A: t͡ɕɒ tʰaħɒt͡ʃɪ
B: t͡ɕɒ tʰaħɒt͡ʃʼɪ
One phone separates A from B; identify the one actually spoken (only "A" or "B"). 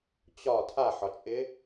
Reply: B